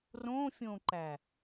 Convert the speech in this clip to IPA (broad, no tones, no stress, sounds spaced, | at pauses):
r õ fʲ õ ǃ æ